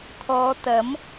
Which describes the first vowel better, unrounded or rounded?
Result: rounded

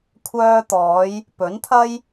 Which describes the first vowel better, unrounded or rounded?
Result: rounded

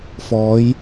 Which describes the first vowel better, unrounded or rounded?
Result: rounded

